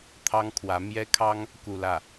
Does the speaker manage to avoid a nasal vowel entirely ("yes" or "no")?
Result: yes